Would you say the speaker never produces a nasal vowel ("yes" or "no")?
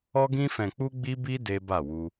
no